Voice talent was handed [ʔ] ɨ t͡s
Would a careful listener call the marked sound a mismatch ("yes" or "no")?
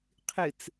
yes